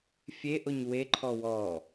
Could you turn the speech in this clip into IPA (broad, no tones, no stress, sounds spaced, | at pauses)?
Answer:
fʲ e ʔ o ɲ w e ǃʰ ɔ w ɔ